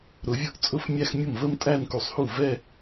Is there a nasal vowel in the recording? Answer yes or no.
no